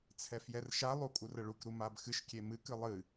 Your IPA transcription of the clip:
t͡sʰɛfjɛrʃalˠu kʼurəɭukɾu mabxɨʃkʲe mɨkɨ lˠɨ

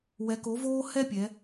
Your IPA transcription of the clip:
wɛ˩˧ko˩˧voː˧ hɛ˥pʲɛ˩˧

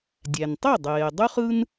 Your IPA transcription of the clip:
dʲæ˩ntˤe˥˩ dˤeː˩ dˤy˥χɯ˥n

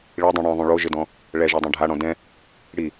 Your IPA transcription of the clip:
ɭidˤũ ɽĩðˤũ ɭoʒɪdɔ̃ | ɭɛʒɛdˤɛ̃ ɖʱaɽɔ̃ dɛ̃ | ɽi

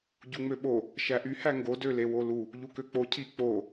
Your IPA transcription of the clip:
ɟuŋ͡møɓo | ʃæʔy hæŋɡo dølewolu | ʎukøk͡po cʰi k͡po

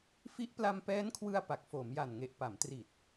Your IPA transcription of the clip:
fi˦˥ʔpla˧mpɛː˦˥nkʰwɯ˧a̯ pa˨˩k̚foː˩˦mja˨˩nŋe˨˩ʔ pa˩˦mtri˨˩t̚

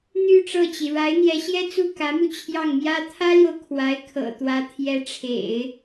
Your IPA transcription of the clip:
n̪y˥˧ ʈ͡ʂɤ˥˩t͡ɕi˩ ɻa˧˥ɪ̯n̪jɛ˧˥ɕjɛ˥t͡su˥˩ kä˧˥mu˧ t͡ɕʰjɑ˥˩ŋmjä˥ t̪ʰä˥ljo˨ʊ̯ kʰwa˧˥ɪ̯ kʰɤ̰˨˩t̪wä˧˥ t̪ʰjɛ˧˥ʈ͡ʂʰḛ˨˩˦ɪ̯

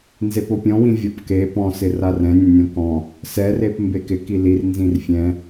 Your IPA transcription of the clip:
nzepopʲɔ̃wĩ vʲɔpke pɔ̃sɪ rarɛ̃nʲɛ̃nʲɔ̃ kɔ̃ | sɛrep mbekɪ kilir nzĩrfʲɛ̃

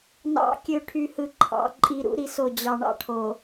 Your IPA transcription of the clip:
nɑ̰˨˦ kʲø˨ʈʰy˨hɯ˨ ǃʰɑ̰˨ ǃʼi˨ɾṵ˦ ɾi˦so˦˨ d͡ʑɑ˨ ɳɑ̰˦ʈʰo˨

